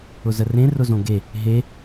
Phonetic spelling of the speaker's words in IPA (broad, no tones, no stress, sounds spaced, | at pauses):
ʊ z ə r ẽ r ʊ z õ ɡ e | ɦ e